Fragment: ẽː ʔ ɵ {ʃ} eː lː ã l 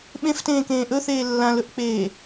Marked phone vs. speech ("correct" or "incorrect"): incorrect